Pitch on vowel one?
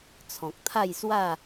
low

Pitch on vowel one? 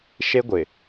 high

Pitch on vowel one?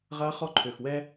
high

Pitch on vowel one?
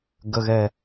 low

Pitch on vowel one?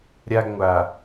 high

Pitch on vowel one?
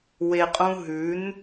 low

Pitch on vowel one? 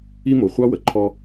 high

